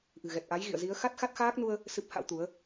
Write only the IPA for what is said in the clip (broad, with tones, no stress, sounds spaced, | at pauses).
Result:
ʔ ɨ̤˨˩ ɣ ɛ˨˩ t̚ ʔ a˨˦ j ɣ ḭ˧˨ ə̯ z i˨˦ ə̯ x a˦˥ t̚ x a˦˥ t̚ x aː˦˥ k̚ n u˧ ə̯ | s ɨ˦˥ p̚ h a̰˧˥ w t̪ u˨˦ ə̯